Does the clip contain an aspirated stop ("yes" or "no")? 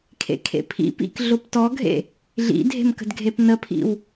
yes